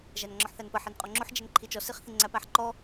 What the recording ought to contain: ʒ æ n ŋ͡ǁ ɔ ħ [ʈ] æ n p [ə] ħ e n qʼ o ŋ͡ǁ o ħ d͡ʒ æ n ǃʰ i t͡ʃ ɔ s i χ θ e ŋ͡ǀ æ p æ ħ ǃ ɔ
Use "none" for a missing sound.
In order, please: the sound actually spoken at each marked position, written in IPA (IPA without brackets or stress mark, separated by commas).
θ, ə